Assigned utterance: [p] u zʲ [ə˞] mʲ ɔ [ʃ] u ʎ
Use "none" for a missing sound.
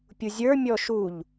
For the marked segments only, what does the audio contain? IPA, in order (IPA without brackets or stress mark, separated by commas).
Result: pʲ, ə˞, ʃ